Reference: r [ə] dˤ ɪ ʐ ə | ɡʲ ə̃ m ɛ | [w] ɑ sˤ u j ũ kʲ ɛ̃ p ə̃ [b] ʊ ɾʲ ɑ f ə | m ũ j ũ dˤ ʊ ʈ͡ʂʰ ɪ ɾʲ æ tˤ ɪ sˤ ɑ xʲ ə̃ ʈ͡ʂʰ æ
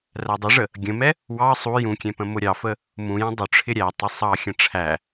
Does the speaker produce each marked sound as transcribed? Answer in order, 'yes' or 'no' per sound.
no, yes, no

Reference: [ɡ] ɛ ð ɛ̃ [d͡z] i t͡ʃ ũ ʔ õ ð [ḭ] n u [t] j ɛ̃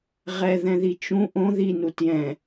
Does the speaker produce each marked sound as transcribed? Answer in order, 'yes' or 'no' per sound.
no, no, no, yes

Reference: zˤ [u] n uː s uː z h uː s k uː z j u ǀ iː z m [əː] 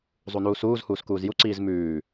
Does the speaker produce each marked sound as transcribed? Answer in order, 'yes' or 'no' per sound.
yes, no

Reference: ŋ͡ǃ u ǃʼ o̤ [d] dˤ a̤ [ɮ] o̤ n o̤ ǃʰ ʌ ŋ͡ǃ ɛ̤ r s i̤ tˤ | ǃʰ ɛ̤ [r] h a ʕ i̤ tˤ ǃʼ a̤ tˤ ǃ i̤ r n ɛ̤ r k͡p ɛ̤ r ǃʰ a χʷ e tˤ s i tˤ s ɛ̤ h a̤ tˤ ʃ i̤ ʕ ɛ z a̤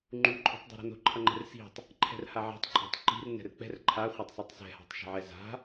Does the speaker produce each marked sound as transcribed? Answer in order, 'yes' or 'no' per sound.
no, no, yes

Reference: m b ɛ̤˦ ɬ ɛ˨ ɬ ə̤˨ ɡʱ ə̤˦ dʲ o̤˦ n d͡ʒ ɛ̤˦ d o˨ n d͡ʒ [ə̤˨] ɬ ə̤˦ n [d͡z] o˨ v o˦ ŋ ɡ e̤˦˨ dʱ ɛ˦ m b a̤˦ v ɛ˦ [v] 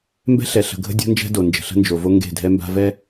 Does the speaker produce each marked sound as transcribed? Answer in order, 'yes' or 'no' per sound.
yes, no, no

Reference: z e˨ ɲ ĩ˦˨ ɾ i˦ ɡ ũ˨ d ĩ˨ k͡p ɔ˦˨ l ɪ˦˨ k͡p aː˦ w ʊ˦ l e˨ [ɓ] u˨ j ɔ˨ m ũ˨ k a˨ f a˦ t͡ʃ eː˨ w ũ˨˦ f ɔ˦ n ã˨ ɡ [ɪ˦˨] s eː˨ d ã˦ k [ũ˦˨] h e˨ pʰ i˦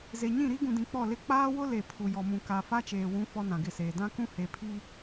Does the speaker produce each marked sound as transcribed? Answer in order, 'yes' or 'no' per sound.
no, yes, no

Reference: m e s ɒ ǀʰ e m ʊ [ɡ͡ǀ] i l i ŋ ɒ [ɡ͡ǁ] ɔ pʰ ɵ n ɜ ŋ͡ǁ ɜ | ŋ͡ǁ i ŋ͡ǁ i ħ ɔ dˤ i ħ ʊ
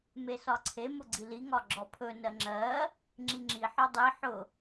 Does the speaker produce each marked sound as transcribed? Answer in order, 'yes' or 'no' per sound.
yes, yes

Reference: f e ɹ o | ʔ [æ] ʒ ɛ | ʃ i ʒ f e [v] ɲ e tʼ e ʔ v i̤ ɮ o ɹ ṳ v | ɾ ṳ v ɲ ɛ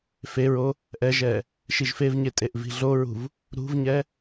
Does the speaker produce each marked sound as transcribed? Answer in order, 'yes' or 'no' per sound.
no, yes

